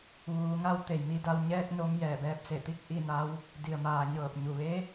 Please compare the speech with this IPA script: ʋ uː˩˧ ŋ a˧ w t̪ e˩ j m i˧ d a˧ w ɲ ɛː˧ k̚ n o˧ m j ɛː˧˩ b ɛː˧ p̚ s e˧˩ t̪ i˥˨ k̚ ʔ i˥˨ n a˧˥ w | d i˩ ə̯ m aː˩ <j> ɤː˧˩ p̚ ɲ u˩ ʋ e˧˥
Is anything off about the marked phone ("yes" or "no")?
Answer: yes